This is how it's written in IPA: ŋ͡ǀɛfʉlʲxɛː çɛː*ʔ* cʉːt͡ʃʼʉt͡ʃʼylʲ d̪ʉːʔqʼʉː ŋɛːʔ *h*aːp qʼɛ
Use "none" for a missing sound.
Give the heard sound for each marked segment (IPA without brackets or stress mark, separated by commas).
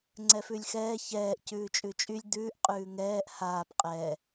ʔ, h